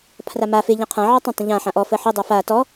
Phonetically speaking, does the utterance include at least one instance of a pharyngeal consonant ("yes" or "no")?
yes